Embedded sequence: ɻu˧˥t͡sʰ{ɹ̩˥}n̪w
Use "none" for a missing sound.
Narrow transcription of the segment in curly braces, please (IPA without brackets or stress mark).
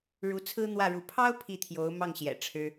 ɹ̩˥